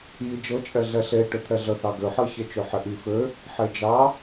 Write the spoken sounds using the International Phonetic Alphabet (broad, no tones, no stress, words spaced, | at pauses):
jid͡ʒɤt͡ʃʼɛ ɮɛɬe ʈøt̪ʰɛɮə θɑɡøħɤ çet͡ʃøħɪʔi fø | ħed͡ʒɑ